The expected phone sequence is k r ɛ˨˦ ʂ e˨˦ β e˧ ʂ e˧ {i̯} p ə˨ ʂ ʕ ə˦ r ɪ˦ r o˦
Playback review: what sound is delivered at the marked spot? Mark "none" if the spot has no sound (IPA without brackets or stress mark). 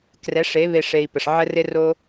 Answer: i̯